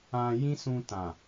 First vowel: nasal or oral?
nasal